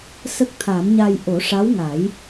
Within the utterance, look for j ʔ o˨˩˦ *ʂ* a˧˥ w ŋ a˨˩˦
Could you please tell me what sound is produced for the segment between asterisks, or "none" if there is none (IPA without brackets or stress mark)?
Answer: ʂ